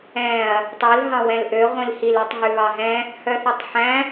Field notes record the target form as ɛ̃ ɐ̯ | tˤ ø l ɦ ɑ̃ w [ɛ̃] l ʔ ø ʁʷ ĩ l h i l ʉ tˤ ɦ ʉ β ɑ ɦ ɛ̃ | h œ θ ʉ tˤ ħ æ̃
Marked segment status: correct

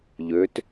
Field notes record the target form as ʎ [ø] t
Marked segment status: correct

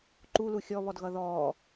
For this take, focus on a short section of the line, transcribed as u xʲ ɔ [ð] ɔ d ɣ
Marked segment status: incorrect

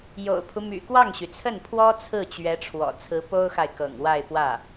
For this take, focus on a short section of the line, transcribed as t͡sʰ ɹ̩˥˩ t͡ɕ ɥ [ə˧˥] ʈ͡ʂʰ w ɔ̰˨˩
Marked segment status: incorrect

